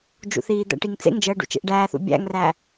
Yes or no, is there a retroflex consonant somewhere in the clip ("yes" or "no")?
yes